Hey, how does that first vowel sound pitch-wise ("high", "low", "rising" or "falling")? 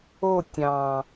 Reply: falling